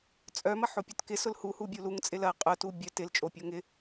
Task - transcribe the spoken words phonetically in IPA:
t͡sʼœmɐ ħopʲœtkɪ sʊlhuhu bʲuluŋt͡sʼɪl ɐ qʼʊtu bʲœ tɪlt͡ʃʼo pʲoŋɪ

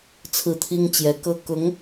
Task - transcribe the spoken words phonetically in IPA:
t͡sʰɹ̩˥˩t̪ʰi˥ŋt͡ɕjɛ˧˥kɤ˥ kʊ˧˥ŋ

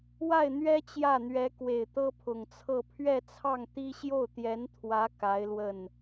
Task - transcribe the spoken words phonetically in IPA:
wa˥˩ɪ̯n̪ɥɛ˥ t͡ɕjä˥˩n̪ɥɛ˧˥kwe˨˩ɪ̯t̪ɤ˥ pʰʊ˨˩ŋt͡sʰɤ˥˧ pʰɥɛ˥˧t͡sʰɑ˥˩ŋt̪i˥ ɕjo˥˩ʊ̯t̪jɛ˧˥nt̪ʰwä˧˥ ka˧˥ɪ̯lwə˥˩n

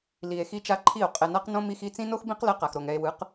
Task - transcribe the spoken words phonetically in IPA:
li˨e̯ xi˦t͡ʃa˦ǃʰi˦˨o̯ qʼɛ˨na˦qnõ˦ mi˧x i˧ t͡sĩ˦no˦xbĩ˦qlɛ˧ qa˨xɾo˨ŋɛ˧e̯ wɯ˨˦q

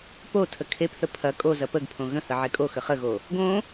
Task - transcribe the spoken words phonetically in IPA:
po tʰəkʰepθə pʰɐ kʼo zɐpəɡpʰõ ɣə̃hə ʕekʼoxə χəɣo | ɡõ

